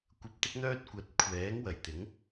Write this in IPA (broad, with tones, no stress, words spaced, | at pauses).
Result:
kʷɐ˧p̚t̪ɪ˥k̚n̪œː˥t̚ kʷɐ˨˥t̚kʷʰɛː˨˥ŋ wɐ˨˩jt̪ɪ˨˥ŋ